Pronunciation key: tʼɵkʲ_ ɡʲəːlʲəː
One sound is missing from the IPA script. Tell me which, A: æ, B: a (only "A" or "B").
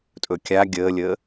B